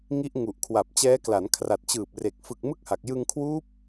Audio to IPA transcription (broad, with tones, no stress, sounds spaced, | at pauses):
ŋ i˦˥ ʔ ŋ u˨˩ ʔ kʰ w a˨˩ p̚ t͡ɕ ɛː˦˥ k l a˩˦ n kʰ r a˨˩ t̚ t͡ɕ ɯː˨˩ p̚ r e˨˩ k̚ f ɯ˨˩ k̚ m ɯ˥˩ k̚ h a˨˩ k̚ j ɯ˧ ŋ kʰ w uː˦˥ p̚